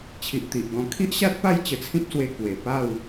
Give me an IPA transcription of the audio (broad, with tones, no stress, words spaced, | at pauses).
t͡ɕʰi˨ʔt̪i˨ʔɡɔ̃˧ kʰi˦ʔɕa˦t̚pa˥˧j t͡ɕə˧t͡sʰĩ˦p̚swe˧ kwe˨˩ pa˥˧w